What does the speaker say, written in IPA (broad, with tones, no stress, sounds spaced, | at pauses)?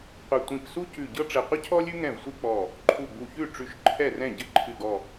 qʷ ə˧˩ tʷ ĩ˧˩ p s u˥ c ʉ˧˩ ɟ ɤ˥ ʈ͡ʂ ɘ˧˩ qʷ ə˥ cʰ ɔ˥ lʲ ʉ˥ ŋ ɛ̃˥˩ v sʷ ɨ˥ k͡p ɔ˧˩ | ǃʰ u˧˩ ɡ͡b u˧˩ ç ʉ˥˩ ʈ͡ʂ ʉ˧˩ ʃ ǃʰ ɛ˥˩ r ɛ̃˥˩ ɟ ɘ˥ ǃʰ ɨ˧˩ ɡ ɔ˧˩